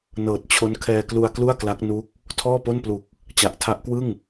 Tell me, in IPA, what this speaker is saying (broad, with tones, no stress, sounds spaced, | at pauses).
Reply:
n ɤː˨˩ t̚ t͡ɕʰ o˦˥ n kʰ ɛː˧ k l u˧ a̯ k l u˥˩ a̯ k l a˦˥ k̚ n u˦˥ k̚ | tʰ ɔː˥˩ p o˥˩ n p l u˨˩ k̚ | t͡ɕ a˨˩ ʔ tʰ a˦˥ ʔ k w ɯ˥˩ ŋ